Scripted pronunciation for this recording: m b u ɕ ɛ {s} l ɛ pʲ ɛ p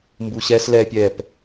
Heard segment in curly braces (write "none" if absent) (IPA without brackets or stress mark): s